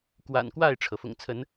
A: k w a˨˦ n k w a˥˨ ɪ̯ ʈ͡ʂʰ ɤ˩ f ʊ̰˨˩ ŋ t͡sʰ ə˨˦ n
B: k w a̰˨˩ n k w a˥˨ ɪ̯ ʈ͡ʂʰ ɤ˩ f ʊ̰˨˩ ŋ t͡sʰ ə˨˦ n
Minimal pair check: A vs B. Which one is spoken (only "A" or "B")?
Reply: B